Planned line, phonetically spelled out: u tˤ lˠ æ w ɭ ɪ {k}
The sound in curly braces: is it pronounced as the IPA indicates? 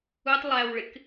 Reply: yes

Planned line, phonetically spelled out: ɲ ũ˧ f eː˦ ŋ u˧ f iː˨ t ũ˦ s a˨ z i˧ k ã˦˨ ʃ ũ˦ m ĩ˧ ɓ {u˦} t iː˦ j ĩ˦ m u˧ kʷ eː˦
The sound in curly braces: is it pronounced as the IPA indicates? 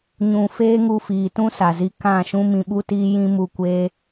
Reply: yes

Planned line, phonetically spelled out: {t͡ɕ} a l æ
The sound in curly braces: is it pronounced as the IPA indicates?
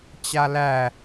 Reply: yes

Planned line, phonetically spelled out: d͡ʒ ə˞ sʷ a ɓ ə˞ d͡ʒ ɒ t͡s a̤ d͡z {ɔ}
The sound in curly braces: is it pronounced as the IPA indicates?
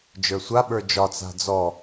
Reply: yes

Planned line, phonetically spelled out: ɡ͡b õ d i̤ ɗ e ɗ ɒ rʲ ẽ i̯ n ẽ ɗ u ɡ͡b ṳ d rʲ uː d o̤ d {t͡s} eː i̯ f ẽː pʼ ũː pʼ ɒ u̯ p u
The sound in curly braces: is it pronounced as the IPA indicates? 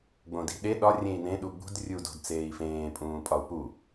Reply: yes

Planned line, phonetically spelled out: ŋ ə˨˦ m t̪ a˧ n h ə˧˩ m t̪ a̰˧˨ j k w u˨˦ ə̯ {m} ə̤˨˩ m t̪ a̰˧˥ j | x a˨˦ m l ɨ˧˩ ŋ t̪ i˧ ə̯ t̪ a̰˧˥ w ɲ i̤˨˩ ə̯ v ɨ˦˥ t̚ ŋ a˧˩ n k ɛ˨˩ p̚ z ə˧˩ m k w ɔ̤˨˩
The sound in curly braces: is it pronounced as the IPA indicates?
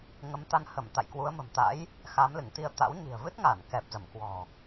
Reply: yes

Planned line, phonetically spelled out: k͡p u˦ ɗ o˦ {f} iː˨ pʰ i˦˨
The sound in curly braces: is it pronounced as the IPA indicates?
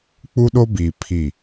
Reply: no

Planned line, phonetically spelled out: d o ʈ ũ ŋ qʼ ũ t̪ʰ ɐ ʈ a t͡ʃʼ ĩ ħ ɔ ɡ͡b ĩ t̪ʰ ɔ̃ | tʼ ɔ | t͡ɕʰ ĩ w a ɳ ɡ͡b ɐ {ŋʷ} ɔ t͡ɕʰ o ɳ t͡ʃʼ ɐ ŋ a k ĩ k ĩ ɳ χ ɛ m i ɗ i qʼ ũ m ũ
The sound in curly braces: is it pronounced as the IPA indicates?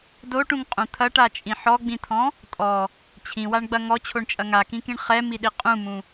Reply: no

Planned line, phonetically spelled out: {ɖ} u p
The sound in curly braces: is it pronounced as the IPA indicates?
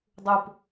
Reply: no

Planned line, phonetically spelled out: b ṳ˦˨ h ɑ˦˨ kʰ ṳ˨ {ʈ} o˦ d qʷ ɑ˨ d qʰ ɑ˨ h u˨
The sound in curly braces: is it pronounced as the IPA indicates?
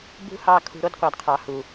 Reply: no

